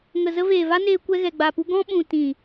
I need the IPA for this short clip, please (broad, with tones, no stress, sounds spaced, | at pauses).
ŋ ə˨ z ə˧ v eː˨ v a˦ n eː˧ kʷ ɛ˧ ɣ ɛ˨ ɡ͡b a˨ p u˧ ɡ ɔ̃˦ ɓ ũ˨ t ĩ˨